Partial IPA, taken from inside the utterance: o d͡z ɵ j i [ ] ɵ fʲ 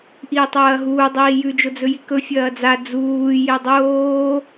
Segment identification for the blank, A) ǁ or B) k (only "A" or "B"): B